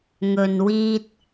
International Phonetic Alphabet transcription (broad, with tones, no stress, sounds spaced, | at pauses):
ŋ ɵ˨ n w iː˧ t̚